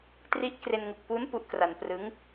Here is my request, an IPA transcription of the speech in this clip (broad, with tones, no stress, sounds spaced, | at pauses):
t r i˦˥ ʔ k r e˧ n ŋ u˨˩ k̚ p u˦˥ n p u˦˥ ʔ k r a˧ n p r ɯ˦˥ ŋ